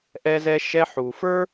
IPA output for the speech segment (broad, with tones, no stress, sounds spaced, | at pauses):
ʔ ɛ˦ z ɛ˦ ʃ ɛ˧ ħ u˨ f ə˞˦